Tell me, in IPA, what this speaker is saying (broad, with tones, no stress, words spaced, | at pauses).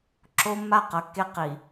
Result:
ǁo˦mːa˦˨ qʌ˨kːe˦ qi˨